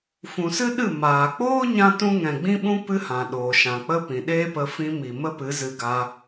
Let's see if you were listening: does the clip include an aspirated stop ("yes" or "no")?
no